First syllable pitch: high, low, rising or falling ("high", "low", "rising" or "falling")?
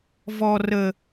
high